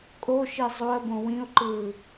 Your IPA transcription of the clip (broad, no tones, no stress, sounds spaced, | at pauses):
kʼ o ʃ i zˤ o ə̯ b õ w ĩ ʊ̯ ǃ ɯː